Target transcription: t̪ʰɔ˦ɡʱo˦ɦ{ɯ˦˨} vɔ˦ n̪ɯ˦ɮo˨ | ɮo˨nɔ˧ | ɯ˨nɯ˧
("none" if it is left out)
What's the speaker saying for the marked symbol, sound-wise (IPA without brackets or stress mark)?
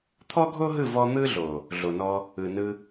ɯ˦˨